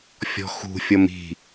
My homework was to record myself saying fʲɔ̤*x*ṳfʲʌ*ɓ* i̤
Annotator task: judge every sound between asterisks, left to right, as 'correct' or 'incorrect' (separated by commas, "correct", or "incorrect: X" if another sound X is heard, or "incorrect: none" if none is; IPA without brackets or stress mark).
correct, incorrect: m